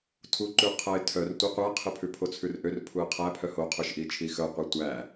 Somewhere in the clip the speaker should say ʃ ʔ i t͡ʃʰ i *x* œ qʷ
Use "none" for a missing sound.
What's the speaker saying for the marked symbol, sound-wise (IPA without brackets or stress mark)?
x